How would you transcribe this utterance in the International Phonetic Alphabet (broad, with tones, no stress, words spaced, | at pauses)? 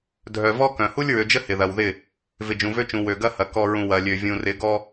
dʱœ˨vɔ˦kœ̃˨ hu˦lʲɹø˨d͡ʒə˦ hɪ˨ðɐ˨wðɪ˦˨ | vɪ˨d͡ʒũ˨vø˦t͡ʃũ˨ wø˨ɡɐ˦hɐ˨ kɔ˨ɹũ˨ wɐ˨lʲø˨ vʲũ˨rɪ˨˦ɡɔ˦